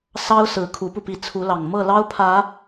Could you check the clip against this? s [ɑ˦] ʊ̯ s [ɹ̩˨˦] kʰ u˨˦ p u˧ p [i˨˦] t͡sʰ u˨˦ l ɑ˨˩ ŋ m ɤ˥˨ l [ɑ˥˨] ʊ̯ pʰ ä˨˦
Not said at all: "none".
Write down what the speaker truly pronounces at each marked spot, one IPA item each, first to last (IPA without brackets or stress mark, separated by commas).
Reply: ɑ˦, ɹ̩˨˦, i˨˦, ɑ˦